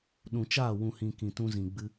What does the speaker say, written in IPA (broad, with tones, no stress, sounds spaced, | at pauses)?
ɗ ũ˨ t͡ʃ aː˦˨ w ũ˨ h ĩ˨ k ĩ˨ t ũ˧ z ĩ˨ ɡ͡b ɨ˧